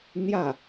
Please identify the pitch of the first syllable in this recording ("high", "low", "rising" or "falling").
falling